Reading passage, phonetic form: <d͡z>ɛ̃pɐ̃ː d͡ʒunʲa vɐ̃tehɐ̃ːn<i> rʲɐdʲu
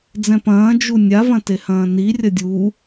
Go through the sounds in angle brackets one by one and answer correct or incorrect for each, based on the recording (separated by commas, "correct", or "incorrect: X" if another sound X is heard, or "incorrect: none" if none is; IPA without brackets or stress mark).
correct, correct